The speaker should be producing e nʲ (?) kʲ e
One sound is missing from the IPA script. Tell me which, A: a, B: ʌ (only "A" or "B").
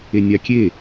A